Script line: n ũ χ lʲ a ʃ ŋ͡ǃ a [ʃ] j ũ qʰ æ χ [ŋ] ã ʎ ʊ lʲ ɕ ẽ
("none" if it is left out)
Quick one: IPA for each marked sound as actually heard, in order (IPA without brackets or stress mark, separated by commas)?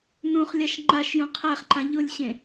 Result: ʃ, ǃ